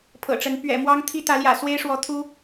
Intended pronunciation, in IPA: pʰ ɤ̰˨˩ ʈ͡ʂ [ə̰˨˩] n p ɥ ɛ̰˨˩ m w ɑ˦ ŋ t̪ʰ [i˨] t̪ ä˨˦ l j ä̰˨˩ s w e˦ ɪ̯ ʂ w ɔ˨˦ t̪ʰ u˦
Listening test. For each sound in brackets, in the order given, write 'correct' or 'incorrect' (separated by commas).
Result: incorrect, incorrect